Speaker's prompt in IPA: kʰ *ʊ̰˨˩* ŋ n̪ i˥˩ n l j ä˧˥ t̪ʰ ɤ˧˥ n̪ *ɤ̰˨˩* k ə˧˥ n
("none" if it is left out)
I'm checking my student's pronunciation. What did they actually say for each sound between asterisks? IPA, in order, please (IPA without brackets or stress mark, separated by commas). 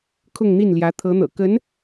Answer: ʊ˥˧, ɤ̰˨˩